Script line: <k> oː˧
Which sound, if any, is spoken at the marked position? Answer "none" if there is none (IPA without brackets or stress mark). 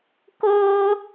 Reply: k